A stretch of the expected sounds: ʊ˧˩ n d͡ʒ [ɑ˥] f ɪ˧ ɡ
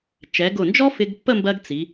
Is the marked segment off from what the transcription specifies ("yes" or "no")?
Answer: yes